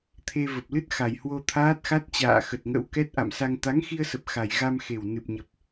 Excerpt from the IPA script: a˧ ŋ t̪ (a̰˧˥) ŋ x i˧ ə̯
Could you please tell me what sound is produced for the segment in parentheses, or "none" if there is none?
a˨˦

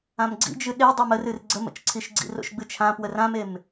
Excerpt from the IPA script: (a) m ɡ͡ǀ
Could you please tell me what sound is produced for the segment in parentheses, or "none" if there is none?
ã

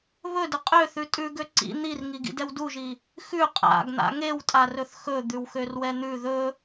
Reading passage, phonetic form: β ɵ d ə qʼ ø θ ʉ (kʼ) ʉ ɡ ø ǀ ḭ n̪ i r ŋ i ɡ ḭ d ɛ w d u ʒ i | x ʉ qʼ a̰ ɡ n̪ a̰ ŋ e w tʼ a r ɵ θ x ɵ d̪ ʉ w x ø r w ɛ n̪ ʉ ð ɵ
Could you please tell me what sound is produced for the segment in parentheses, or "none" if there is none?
tʼ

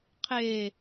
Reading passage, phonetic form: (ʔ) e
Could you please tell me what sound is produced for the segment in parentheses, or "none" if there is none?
qʰ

